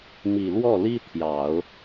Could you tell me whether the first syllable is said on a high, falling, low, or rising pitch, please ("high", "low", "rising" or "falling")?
low